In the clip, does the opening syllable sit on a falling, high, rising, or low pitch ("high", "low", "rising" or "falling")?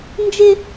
high